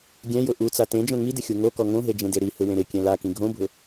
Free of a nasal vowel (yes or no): no